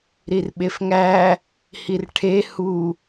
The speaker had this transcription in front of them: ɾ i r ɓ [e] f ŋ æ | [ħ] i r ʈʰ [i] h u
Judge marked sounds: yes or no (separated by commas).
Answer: yes, no, no